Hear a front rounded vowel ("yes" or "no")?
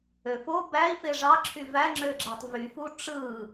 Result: yes